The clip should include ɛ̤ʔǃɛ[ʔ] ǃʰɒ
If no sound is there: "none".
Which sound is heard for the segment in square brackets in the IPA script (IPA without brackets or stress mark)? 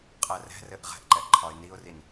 ʔ